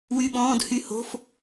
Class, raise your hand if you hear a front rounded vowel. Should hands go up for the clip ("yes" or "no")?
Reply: yes